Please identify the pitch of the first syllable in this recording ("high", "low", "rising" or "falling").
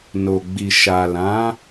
low